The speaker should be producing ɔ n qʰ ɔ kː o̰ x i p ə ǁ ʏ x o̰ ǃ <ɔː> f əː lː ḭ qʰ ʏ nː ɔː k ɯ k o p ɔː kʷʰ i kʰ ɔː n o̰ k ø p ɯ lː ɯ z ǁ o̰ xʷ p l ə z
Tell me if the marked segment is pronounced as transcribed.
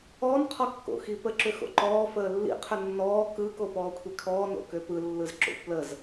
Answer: yes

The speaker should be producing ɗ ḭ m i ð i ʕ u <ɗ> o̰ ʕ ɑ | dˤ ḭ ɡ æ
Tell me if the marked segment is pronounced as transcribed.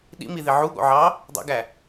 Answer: no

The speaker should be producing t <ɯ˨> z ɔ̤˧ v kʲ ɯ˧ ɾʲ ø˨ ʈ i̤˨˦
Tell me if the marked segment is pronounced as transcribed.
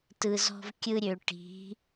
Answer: yes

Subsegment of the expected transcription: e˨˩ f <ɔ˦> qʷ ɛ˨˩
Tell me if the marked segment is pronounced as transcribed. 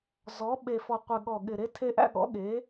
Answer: no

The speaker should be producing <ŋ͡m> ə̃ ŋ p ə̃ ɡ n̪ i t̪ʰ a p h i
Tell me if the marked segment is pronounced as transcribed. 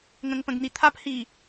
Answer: no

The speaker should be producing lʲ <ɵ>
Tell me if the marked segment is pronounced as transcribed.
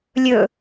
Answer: yes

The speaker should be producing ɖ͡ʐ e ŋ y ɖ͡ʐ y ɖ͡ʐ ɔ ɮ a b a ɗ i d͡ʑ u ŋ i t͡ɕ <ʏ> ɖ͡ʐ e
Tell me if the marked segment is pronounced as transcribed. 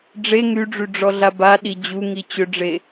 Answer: yes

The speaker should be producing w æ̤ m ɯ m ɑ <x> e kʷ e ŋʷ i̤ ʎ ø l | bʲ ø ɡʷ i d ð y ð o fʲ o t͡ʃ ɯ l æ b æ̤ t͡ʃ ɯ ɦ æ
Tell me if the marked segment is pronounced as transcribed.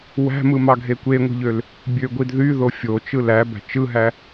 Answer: no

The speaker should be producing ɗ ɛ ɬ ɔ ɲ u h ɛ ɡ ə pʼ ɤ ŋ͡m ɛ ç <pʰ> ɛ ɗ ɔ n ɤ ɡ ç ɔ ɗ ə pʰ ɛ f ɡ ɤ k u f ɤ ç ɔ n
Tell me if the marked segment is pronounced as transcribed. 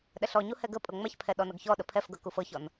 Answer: yes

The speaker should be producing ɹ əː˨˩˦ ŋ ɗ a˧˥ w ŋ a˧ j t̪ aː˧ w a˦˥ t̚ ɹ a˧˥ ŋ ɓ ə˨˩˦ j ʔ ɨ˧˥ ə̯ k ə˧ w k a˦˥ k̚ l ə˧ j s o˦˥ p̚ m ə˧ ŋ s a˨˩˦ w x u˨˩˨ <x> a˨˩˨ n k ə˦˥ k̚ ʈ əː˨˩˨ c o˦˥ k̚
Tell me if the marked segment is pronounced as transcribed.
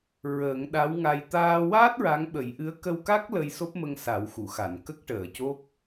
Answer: yes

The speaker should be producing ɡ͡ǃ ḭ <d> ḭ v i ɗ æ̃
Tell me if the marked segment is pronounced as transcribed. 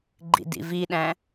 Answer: yes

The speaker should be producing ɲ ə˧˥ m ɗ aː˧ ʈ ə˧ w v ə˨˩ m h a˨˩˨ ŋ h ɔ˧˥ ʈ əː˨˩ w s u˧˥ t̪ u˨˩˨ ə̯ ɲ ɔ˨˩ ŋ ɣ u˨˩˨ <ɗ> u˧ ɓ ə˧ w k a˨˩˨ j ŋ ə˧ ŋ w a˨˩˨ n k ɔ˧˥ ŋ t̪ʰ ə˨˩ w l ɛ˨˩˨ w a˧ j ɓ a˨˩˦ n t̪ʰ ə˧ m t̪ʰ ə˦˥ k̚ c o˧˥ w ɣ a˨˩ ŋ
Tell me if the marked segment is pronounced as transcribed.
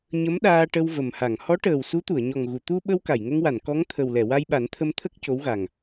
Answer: no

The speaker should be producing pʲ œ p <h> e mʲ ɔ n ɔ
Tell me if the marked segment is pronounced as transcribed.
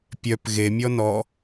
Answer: no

